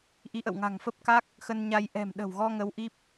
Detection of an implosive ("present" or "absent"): present